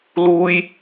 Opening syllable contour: high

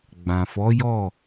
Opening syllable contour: low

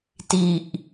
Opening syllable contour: low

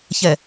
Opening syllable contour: low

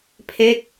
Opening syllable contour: falling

